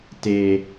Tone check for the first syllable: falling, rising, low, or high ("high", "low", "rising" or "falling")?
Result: low